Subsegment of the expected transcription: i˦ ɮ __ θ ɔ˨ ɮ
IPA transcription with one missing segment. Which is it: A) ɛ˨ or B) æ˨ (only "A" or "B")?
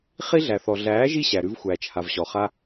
B